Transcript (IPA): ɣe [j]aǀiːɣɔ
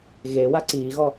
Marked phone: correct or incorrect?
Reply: incorrect